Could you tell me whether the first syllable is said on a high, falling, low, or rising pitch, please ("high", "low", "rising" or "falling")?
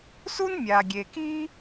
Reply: high